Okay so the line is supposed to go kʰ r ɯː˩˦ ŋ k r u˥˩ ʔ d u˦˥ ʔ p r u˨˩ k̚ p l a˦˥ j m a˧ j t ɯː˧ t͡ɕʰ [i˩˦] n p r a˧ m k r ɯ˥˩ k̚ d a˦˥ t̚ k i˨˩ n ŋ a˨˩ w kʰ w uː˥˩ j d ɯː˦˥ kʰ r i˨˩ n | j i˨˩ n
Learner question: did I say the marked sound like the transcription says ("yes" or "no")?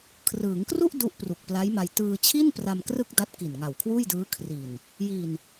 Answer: no